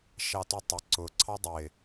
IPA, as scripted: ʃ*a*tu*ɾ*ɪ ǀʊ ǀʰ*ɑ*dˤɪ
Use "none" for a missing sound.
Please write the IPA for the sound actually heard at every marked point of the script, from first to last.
ɑ, tˤ, ɑ

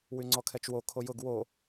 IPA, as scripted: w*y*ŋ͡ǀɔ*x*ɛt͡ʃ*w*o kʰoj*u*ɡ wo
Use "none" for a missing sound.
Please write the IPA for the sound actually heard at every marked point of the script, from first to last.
y, kʰ, w, ʊ

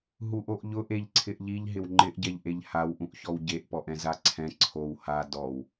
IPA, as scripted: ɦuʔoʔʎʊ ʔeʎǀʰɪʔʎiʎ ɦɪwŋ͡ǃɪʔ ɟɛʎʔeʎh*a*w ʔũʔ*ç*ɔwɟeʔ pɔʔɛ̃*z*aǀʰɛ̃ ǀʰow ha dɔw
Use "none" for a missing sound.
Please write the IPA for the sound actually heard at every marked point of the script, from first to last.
a, ç, z

